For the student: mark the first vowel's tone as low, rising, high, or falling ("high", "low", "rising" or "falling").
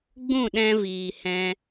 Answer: falling